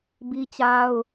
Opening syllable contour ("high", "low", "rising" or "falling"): high